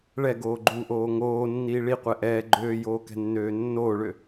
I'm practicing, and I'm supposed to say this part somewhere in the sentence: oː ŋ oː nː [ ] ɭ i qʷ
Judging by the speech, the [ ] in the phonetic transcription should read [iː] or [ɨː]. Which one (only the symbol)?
iː